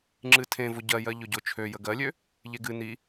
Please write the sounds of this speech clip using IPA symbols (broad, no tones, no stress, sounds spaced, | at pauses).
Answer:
ŋ͡ǁ ɨ tʰ ẽ v ʊ ɟ ɜ j ɜ ʎ ʊ ɟ ʊ t͡ʃʰ ø j ə ɡ ɜ lʲ ø | ʎ e ɡ ɨ n i